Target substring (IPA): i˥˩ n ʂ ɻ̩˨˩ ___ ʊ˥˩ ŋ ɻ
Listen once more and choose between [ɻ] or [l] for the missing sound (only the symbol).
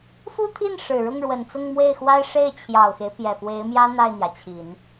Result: ɻ